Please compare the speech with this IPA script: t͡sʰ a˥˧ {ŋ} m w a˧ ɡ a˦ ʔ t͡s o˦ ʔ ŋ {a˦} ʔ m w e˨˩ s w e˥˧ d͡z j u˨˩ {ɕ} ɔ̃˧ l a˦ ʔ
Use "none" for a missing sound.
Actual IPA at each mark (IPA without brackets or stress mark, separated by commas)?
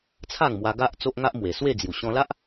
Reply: ŋ, a˦, ɕ